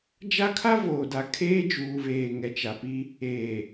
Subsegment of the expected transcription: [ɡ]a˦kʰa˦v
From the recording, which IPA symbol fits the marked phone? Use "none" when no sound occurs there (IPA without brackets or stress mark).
d͡ʒ